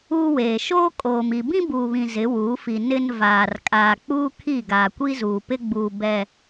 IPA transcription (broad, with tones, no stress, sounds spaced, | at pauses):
uː˦ w eː˨ ʃ oː˦ kʼ oː˨ m i˨ b ĩ˦ b uː˨ β ĩ˨ z ɪ˨˦ w uː˨˦ f i˨ n ɪ˦ n v aː˨ r kʼ aː˨ k͡p uː˦ kʰ i˦˨ ɡ aː˨ kʷ i˦ z uː˨ p ɪ˦ ɡ͡b uː˨ b ɛ˨